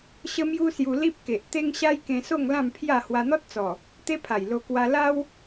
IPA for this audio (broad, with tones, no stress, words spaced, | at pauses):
ɕə˦mju˦sju˧ li˦p̚ke˨ʔ t̪e˦ŋɕa˦jkẽ˧so˥˧ŋ lã˥˧mpʰja˥˧ hwa˧n̪ɔ˦t̚t͡sɔ˨˩ | t̪e˦pʰa˨˩jlo˧ kwa˧la˦w